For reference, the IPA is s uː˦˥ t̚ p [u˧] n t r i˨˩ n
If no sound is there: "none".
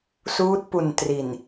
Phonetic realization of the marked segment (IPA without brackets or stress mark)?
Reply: u˨˩